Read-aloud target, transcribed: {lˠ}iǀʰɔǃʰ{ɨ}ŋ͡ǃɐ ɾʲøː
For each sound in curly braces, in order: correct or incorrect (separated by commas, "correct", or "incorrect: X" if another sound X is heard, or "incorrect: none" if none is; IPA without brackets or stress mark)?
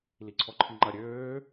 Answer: incorrect: l, incorrect: i